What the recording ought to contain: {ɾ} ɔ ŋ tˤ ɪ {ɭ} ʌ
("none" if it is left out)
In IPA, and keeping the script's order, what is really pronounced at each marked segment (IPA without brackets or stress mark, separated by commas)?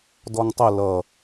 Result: d, l